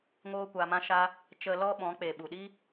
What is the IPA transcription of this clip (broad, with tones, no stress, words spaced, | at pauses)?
ŋoː˦kʷa˧mã˦ʃa˦ | t͡ʃə˧ lɔ˦ɓɔ̃˨˦k͡pe˨ ɓu˨ɗi˦